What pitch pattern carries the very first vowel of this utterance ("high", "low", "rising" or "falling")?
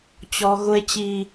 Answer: high